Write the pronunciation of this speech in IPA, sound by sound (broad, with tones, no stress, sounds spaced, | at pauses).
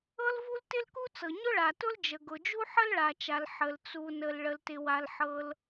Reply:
ɤ˥ l v u˥ l t ɪ˥ l k u˥ t͡s ɤ˩ ɲ ʊ˥ ɭ a˩ t ʊ˥ l d͡ʒ ə˩ ɡ ʊ˩ d͡ʒ u˥ ħ ə˥ l ɭ a˩ t͡ʃ a˩ l ħ ə˩ l t͡s u˩ n ə˩ l ɭ ə˩ l t ɪ˩ w a˩ l ħ ɤ˩ l